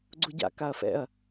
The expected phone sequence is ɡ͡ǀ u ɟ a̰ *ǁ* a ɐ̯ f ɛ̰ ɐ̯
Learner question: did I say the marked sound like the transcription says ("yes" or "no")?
no